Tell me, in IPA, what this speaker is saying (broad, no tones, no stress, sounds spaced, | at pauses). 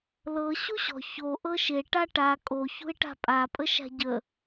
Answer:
l ɤ ɕ u ɕ ɔ̤ ç o ʔ ɤ ʃ e ʈ a ʈ a kʼ o ç ṳ ɪ̯ ʈ a̤ pʼ a pʼ ə ʃ a̤ ɟ ə